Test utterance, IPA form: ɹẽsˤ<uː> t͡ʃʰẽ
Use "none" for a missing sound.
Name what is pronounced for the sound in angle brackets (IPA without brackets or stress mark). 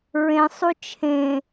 u